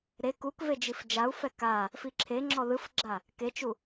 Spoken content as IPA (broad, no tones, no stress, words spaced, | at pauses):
ɾe kukved͡ʒif d͡ʒau̯fɛ ka | fiǁʰe ŋ͡ǁɔðɯfɡ͡ǁa | ket͡ʃu